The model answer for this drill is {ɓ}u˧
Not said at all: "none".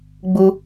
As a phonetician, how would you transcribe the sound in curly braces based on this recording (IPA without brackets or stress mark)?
ɡ͡b